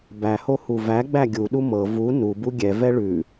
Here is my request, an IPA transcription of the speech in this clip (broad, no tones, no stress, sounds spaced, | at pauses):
b æ h o h u v æ ɡ͡b æ ɡʲ u ɗ u m ɤ v u n u b u ɡʲ ɛ v ɛ ɭ ʉ